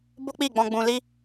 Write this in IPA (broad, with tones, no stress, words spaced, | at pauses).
bo˦k͡pi˦˨ɡ͡bɔ̃˧ ɡ͡bũ˧li˦